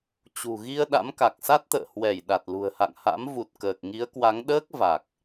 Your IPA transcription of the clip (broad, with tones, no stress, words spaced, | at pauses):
t͡ɕṳ˨˩ ɣi˧ə̯ ɗa̰˧˥mka˨˩k̚sa˦˥t̚t̪ə̰ː˧˨ hwɛ˧˩j ɗa˨˩t̚lṳ˨˩ə̯ha̰˧˨ŋha̰˧˥m vu˨˩t̚ kəː˨˩k̚ŋi˨˦ə̯kwa˨˦ŋ ɗəː˦˥k̚ va˨˩k̚